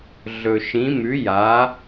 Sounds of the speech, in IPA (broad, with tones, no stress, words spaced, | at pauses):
ɮɵ˨ʃĩ˨˥mʉ˨˥ ja˨˥